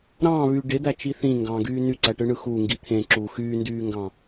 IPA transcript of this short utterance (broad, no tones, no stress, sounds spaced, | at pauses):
ɾ ɑ̃ː β y ɖ e d̪ æ t͡ʃ i θ ĩ ŋ ɡ ɑ̃ː ɡ yː n y ǀ æ ʈ ɯ ɳ ɯ x u ŋ ɡ i t̪ʰ ẽ ǁ uː x yː n d yː ŋ ɡ ɑ̃